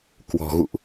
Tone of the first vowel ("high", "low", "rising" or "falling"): low